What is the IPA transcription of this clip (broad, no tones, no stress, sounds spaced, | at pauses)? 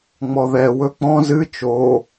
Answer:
ŋ͡m ɔ ð ɛ w ɵ k͡p ɔ̃ z ɨ t͡ʃ o